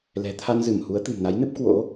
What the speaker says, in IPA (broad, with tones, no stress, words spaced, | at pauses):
lɛ̤˨˩t̪ʰa˧nzɨ˧˩m hu˨˦ə̯t̪ɨ̤˨˩mna˨˦jnɨ˦˥p̚ kwo̰˧˥